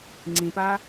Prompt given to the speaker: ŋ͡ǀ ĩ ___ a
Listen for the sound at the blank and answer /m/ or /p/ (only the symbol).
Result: p